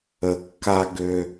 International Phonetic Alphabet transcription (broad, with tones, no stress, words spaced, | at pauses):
ə˨ kːa˦ ɡø˦